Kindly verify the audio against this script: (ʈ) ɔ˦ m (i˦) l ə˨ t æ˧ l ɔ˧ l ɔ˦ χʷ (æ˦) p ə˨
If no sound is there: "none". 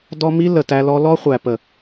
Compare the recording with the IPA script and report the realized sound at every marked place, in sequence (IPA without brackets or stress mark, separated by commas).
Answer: d, i˦, æ˨